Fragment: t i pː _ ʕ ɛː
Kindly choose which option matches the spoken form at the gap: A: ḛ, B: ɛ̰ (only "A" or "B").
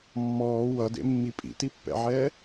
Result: B